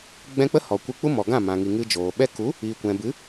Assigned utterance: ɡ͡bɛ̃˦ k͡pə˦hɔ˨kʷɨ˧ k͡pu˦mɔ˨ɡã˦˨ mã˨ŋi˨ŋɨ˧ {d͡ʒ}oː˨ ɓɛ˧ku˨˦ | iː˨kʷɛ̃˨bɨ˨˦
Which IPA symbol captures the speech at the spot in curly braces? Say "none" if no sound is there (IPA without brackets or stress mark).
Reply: d͡ʒ